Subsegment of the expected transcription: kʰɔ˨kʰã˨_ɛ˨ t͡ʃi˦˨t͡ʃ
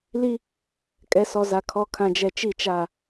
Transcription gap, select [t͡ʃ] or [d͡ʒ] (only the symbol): d͡ʒ